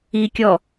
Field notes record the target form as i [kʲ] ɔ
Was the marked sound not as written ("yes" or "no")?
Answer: no